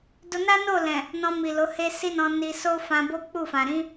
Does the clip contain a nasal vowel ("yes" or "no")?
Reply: yes